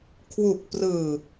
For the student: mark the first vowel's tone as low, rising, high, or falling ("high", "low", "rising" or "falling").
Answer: low